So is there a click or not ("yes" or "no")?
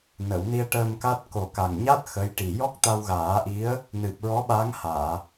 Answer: no